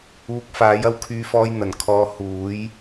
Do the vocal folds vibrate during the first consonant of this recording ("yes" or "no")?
no